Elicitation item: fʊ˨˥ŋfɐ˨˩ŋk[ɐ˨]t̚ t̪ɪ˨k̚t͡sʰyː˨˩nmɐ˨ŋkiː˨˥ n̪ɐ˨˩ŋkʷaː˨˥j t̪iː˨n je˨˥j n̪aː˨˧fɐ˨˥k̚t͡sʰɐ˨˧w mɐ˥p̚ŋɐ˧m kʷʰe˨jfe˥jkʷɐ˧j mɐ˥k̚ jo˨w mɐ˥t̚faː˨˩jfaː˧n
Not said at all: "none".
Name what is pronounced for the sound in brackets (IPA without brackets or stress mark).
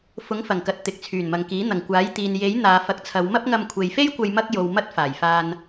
ɐ˨